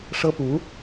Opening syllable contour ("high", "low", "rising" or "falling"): high